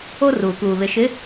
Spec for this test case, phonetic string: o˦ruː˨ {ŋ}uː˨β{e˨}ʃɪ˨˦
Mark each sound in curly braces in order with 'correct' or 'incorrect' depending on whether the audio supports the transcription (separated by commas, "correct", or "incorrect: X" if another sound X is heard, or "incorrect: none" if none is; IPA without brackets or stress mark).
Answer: incorrect: k, correct